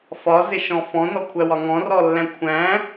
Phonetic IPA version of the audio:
f ɒ z ɪ ʃ ɔ̃ f ɔ̃ n ɔ kʷʰ æ w ɒ ŋ ɔ̃ r ɔ lː æ̃ kʷʰ æ̃

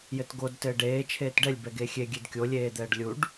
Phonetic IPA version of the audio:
j ɘ t ɡ o d t ɘː ɖ eː t͡ʃʰ eː t ɖ ɛ lʲ b ɛ ɡ e xʲ e ɡʲ e d kʲ o lʲ eː d̪ ɛː ɖ lʲ u ɖ

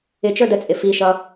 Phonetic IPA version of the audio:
ɪ t͡ʃ ə˞ d ə t͡sʼ ɪ f i ʃ ʌ

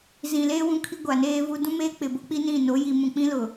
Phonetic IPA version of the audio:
z ĩ˨ l eː˦ w ũ˦ kʰ i˦ ɡʷ a˨ n eː˦ v u˦ d ũ˦ m eː˦ k͡p ɪ˨ b o˦ k͡p i˦ n ĩ˦˨ n o˨˦ j i˨ m ũ˨ k͡p ĩ˦ l ʊ˨

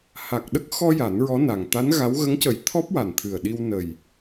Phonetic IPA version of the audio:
h a˨˩ k̚ ɗ ə˦˥ k̚ x ɔ˧ j a˨˩˦ n ɹ ɔ˧˥ n a˨˩ ŋ t̪ a˧˥ n ɣ a˧˥ w ɣ ə˧˥ ŋ c ə˨˩˦ j t̪ʰ ɔ˦˥ p̚ w a˨˩ n t̪ʰ ɨ˨˩ ə̯ ɗ i˧ w n ə˨˩ j

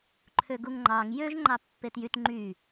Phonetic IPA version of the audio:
ǃʰ ø ɡ u ŋ ŋ͡ǃ ɑ ŋ j ø ʒ ŋ͡ǃ ɑ pː e t j y t ŋ͡ǃ y

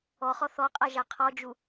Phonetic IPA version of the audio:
ɔ χ ɔ θ ɔ qʼ a ʒ a qʰ ɔ d͡ʒ u

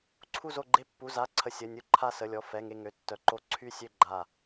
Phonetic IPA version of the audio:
ǀʰ u˧˩ z o˧˩ ɡ͡ǃ e˧˩ pː u˩˧˩ z a˩˧˩ ǀʰ ə˩˧˩ sʲ ə˩˧˩ nʲ u˧˩ ǃʰ a˧˩ s ə˩˧˩ lʲ ɔ˩˧˩ f ɛ˩˧˩ ŋ e˧˩ ŋ ø˩˧˩ tː œ˩˧˩ ǃ o˧˩ ǀʰ y˧˩ sʲ ø˧˩ ɡ͡ǃ a˧˩

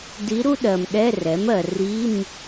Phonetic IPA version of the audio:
d i˧˥ ɾ u˥ ɗ ɜ˨ m ɗ ɛ˧˥˧ r ɛ˩˥ m ɜ˨ r i˧˥˧ m

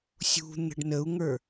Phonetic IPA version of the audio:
sʲ ṳ n̪ ə̤ ɖ n ə u̯ ŋ ə˞

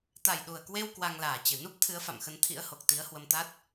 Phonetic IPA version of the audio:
t̪ a˨˩ j ɗ u˨˩ ə̯ k w e˧ w k w a˧ ŋ l aː˨˩ t͡ɕ ɨ˧˩ n u˦˥ p̚ t̪ʰ ɨ˨˦ ə̯ f a̰˧˨ m x ə˨˦ n t̪ʰ ḭ˧˥ ə̯ h o˨˩ k̚ t̪ i˨˦ ə̯ h w ə˧ m t̪ a˦˥ t̚

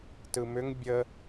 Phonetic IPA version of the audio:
t ɯ m ʏ ŋ bʲ ə

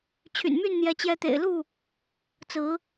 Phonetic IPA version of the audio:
t͡ɕʰ y̰˨˩ n m y˥˨ n n̪ j ɛ˨˦ t͡ɕ j ɛ˨˦ t̪ ḛ˨˩ ɪ̯ l u˥˨ | t͡s ɹ̩˨˦

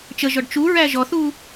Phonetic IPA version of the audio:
t͡ʃ ə ʒ ɔ ɖ t͡ʃ u ɹ æ ʒ ɔ θ u

